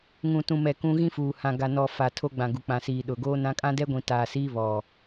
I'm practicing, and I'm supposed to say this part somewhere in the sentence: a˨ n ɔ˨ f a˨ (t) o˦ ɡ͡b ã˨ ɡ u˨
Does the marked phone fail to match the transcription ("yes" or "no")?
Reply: yes